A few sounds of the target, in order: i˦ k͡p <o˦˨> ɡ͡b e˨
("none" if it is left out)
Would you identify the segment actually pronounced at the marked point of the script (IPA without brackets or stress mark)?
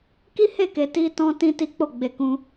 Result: o˦˨